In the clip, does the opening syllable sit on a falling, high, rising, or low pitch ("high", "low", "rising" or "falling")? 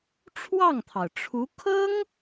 falling